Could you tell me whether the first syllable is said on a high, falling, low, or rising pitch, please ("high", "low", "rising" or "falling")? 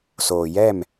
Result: low